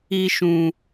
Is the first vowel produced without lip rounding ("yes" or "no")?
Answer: yes